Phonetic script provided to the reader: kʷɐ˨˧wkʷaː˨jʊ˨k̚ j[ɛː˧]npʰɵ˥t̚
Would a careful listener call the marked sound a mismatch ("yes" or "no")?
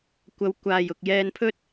no